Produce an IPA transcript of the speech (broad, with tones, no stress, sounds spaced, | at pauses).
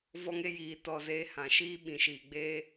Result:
v ɔ˦ ŋ e˦ j iː˧ t ɔ˦˨ z eː˦ h ã˨ ʃ iː˦ ɓ ĩ˨ ʃ iː˨ ɡ͡b eː˦